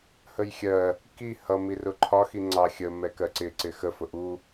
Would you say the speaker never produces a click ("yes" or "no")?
no